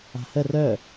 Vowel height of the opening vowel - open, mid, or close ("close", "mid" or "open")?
open